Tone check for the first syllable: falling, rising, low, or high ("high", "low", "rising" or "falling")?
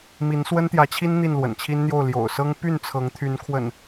rising